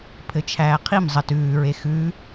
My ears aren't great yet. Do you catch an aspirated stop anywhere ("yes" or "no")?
yes